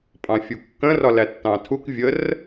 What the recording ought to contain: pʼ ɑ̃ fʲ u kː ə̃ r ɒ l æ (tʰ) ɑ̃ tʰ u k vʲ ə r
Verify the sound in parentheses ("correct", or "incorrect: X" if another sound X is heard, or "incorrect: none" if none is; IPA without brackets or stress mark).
incorrect: tː